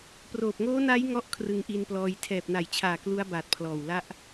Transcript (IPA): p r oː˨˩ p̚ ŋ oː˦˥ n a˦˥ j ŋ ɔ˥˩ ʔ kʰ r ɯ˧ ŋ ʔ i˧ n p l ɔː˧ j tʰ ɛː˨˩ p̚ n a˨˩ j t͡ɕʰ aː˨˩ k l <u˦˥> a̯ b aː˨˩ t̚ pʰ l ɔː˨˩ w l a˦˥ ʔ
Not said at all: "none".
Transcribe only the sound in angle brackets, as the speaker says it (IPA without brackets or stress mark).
u˦˥